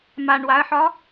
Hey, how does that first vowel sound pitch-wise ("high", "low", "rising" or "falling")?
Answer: low